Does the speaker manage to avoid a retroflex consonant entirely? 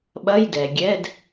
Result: yes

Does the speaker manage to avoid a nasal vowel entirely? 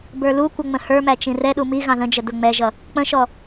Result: no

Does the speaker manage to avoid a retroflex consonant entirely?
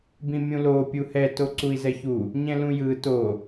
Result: yes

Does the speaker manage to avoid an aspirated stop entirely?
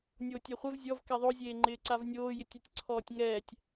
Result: no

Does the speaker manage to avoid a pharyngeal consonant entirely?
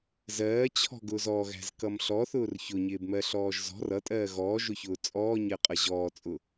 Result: yes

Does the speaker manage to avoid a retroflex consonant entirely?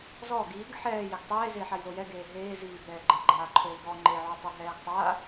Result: yes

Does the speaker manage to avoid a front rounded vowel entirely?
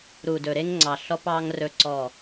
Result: yes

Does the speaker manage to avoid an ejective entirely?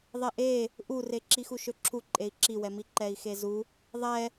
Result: no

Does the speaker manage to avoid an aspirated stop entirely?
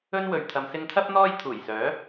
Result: no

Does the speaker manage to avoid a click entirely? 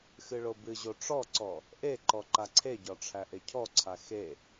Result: no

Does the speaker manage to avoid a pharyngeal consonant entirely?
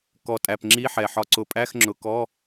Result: no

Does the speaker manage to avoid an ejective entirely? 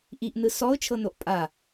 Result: no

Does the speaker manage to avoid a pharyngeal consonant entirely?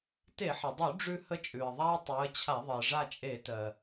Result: no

